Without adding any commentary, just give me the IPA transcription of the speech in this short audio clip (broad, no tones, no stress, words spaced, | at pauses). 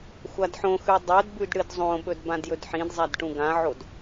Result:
xʷadħõxʉ dˤodbʉd ɽɨdzˤõɓɵd bãdjɵdħĩdzˤad ʈũɡãʕod